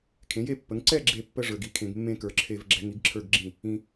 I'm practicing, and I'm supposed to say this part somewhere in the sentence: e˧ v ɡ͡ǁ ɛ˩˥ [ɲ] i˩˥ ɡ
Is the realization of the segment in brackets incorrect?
yes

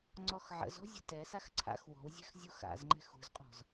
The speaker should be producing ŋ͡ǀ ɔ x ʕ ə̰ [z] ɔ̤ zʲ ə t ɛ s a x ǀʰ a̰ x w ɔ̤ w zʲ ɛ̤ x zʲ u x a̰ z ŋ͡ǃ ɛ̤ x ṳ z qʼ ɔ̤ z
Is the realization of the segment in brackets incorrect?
no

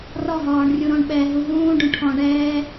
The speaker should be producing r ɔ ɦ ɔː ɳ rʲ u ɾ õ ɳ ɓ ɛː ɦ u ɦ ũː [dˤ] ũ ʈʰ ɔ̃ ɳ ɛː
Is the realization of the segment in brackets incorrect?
yes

